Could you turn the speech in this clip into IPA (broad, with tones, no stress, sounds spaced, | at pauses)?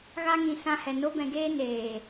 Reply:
ɣ a˦ ŋ ĩ˧ s ã˧ h ɛ˨ n o˦ b ɛ̃˧ ɡ eː˦ n eː˨